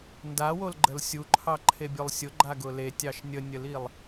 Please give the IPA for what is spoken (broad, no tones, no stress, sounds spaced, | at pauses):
n d a w o l ɡ͡ǃ ə l sʲ u ǃʰ ɑ ǃʰ e bʲ o lˠ sʲ ʊ ɡ͡ǃ a ɡ ʊ l e tʲ ɑ ʃ nʲ ə nʲ ə l i lˠ